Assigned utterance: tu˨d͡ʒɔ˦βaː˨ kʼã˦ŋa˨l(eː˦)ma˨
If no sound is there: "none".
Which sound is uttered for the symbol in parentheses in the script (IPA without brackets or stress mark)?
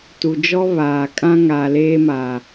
eː˦